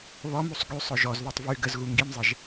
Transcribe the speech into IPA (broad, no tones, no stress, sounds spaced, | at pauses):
β ɔ m u sˤ ɡ y sˤ œ ʒ ɔ z ð œ tˤ v y ɡ ə z ɣ u ŋ ɡ i m zˤ ɛ ʒ